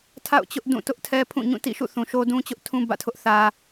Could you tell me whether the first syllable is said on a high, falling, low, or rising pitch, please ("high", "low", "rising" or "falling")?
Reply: falling